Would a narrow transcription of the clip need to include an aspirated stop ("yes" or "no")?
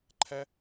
yes